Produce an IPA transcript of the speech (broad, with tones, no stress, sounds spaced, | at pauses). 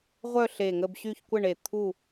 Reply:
ʁʷ œ˥˨ ɬ e˧˩ ŋ ə˥˨ b ɕ y˥˨ ç kʷ ə˥˨ ɳ e˧˩ t̪ʰ u˥˨